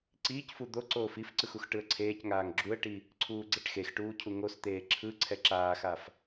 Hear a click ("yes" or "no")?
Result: yes